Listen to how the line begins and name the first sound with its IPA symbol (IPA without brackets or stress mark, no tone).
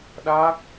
ɗ